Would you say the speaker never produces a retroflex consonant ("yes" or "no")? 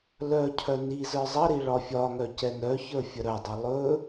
no